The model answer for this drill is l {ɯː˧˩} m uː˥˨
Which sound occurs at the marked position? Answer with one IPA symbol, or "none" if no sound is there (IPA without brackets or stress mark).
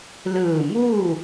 ɯː˧˩